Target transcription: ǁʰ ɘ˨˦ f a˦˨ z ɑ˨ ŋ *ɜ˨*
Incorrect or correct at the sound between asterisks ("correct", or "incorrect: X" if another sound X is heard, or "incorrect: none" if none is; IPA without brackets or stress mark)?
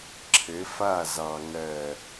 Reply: correct